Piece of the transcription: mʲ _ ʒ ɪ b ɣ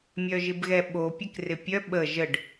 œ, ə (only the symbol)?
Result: œ